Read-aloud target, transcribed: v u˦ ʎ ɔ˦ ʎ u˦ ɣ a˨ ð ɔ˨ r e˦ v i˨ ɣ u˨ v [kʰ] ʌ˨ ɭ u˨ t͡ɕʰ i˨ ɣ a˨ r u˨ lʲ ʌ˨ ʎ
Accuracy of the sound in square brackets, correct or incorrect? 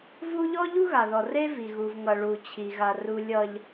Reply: incorrect